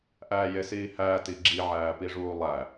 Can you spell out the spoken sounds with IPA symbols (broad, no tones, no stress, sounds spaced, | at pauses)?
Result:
ʔ æː j e s iː h æː t i ɡ͡ǁ i ʕ æː p i ʐ uː lˠ æ